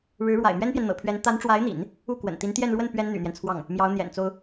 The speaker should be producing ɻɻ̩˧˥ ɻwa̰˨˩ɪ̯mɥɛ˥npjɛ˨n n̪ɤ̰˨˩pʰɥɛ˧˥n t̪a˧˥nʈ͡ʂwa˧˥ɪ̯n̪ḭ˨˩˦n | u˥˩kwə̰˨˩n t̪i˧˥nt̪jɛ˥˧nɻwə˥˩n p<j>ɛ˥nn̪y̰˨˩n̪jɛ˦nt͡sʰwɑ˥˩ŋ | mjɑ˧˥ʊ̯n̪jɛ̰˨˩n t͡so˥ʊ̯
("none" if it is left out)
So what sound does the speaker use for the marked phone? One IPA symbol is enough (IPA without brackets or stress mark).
ɥ